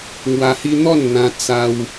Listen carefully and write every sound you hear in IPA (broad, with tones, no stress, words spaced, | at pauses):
ŋwa˧hi˦ n̪ɔ˥˧nn̪ã˧ t͡sa˧w